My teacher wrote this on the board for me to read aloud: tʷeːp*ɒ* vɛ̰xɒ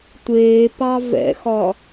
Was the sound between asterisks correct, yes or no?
no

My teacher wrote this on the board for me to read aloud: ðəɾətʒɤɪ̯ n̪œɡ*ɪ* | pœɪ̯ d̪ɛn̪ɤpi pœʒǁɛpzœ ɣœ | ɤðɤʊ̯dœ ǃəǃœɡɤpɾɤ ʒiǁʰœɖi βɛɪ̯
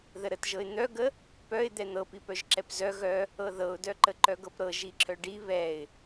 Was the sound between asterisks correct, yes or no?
no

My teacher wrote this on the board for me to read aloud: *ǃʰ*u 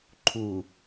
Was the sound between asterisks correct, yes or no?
yes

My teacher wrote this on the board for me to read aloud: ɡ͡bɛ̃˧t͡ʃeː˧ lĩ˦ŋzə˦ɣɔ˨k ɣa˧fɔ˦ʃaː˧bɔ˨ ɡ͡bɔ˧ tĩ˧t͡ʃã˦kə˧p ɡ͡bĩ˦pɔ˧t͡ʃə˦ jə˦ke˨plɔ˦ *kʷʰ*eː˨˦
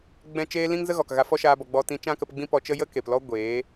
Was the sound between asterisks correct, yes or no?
no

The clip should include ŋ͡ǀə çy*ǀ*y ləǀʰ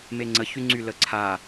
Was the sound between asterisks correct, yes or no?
no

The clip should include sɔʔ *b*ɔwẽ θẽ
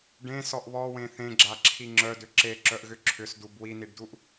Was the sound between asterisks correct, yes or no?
no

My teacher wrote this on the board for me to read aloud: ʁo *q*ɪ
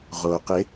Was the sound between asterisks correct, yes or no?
yes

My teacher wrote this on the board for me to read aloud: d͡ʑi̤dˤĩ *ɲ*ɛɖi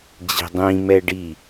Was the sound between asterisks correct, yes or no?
no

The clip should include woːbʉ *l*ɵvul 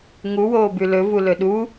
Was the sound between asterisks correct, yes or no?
yes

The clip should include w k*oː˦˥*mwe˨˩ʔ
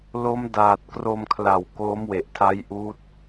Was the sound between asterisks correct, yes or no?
yes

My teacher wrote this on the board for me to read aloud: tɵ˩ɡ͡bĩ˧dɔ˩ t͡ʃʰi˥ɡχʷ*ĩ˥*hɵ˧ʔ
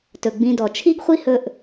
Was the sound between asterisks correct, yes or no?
no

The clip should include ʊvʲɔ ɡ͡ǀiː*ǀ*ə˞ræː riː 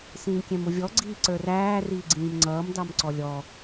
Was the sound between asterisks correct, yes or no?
yes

